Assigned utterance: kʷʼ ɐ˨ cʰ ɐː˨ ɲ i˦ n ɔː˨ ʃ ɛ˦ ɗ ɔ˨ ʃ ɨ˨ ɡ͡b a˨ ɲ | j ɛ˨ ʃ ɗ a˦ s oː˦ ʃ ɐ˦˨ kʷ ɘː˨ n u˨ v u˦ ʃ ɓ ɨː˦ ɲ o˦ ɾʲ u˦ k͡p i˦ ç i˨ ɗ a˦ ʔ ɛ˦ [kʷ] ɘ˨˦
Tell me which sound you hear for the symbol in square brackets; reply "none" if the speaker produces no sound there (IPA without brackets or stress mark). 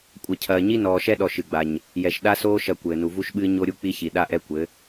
kʷ